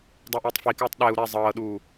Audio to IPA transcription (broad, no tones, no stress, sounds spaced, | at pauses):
dˤ ɛ ʔ iː tˤ f i k ɤː tˤ ɗ ɛ u̯ ɾ ɛ zˤ ɤː ɗ uː